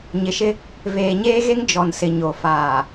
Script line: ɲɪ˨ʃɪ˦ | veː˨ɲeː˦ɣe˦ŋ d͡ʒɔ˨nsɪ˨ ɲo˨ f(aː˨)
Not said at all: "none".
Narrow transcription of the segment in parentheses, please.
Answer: aː˨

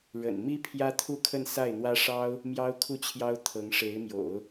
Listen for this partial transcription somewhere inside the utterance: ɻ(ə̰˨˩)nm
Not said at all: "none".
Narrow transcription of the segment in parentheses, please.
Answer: ə̰˨˩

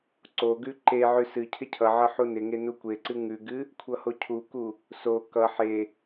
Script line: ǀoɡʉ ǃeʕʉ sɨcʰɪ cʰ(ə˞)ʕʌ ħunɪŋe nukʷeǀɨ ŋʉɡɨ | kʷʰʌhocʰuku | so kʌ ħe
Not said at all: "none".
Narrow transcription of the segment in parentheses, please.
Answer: ʌ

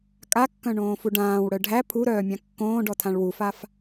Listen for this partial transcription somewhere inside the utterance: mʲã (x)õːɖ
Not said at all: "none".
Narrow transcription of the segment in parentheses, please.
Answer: kː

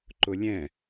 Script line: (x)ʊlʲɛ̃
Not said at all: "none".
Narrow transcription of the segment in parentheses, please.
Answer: ǃ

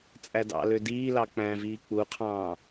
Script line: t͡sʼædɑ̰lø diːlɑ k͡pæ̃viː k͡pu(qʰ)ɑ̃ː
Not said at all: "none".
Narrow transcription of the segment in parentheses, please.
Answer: qʰ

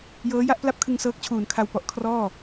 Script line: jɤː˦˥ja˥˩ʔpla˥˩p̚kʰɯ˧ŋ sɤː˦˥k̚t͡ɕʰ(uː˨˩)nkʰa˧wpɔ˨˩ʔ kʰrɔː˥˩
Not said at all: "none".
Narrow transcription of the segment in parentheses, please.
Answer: uː˨˩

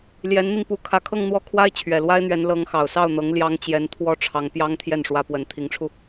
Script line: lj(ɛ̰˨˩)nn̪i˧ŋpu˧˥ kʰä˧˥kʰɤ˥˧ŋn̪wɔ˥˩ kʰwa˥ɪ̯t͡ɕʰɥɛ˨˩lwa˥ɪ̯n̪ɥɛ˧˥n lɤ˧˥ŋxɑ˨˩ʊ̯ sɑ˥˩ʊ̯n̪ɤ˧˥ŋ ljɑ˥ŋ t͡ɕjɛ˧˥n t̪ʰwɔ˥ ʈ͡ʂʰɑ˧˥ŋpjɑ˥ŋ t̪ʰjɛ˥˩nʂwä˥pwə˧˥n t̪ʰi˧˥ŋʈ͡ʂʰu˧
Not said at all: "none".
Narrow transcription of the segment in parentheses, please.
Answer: ɛ˧˥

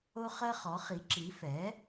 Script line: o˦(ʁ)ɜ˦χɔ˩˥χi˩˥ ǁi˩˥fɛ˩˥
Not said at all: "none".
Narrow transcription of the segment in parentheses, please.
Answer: χ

